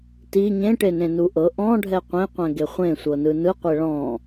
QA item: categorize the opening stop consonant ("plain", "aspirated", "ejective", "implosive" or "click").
plain